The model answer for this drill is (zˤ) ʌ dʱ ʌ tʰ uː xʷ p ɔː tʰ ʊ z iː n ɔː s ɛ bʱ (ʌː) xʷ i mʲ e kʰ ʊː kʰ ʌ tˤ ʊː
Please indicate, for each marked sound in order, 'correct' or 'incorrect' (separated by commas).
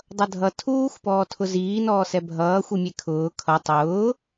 incorrect, correct